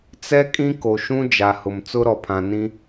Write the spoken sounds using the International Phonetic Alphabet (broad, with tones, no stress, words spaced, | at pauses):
t͡sɛ˦kʼĩ˦ ko˨ʃũ˦ d͡ʒa˨hʊ˨m t͡sʊ˦ɾɔ˨pʰã˨nĩ˦